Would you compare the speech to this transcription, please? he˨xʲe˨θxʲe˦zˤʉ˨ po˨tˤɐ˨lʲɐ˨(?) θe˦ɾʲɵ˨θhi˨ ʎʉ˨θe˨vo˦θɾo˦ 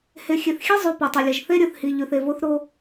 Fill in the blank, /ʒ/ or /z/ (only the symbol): ʒ